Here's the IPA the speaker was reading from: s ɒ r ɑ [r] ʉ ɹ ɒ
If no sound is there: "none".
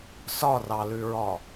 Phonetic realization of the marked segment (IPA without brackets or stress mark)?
l